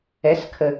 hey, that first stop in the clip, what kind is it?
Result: aspirated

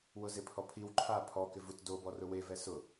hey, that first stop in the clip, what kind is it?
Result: aspirated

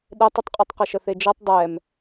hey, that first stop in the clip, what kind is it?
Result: implosive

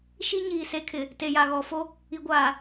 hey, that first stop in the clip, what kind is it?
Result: aspirated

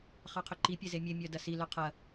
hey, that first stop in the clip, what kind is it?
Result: aspirated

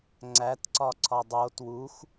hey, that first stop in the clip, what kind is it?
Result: click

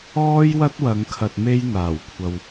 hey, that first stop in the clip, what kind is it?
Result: plain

